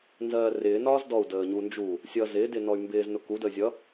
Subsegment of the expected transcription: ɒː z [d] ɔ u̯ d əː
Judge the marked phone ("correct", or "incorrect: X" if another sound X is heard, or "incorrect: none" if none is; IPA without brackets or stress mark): correct